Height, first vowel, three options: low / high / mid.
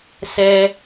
mid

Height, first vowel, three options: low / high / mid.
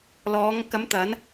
mid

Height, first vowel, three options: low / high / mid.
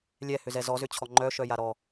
mid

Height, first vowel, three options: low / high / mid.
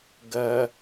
low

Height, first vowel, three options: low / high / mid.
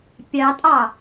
low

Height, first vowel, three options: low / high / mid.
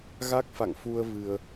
low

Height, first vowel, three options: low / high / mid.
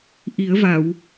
high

